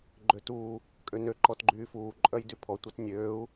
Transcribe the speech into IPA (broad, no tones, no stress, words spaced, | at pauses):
ɡ͡ǃøtuː | kʼønø ǃɔtɡ͡ǃyːfuː ǃʼœjdypʰɔ tʷœtnʲøːu̯